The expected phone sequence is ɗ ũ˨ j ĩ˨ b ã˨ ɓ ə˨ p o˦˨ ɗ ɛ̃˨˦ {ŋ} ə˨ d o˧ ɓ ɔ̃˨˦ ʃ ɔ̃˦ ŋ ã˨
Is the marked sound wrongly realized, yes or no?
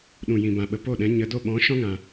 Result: yes